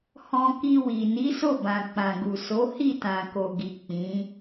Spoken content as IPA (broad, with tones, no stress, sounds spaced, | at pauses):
h ɔ̃˧ k i˧ w i˨ n i˨˦ s o˦˨ b ã˨ k͡p ã˨ ɡ u˨ s o˨˦ h i˦˨ t ã˨ k o˨ ɡ i˨ k͡p ĩ˨˦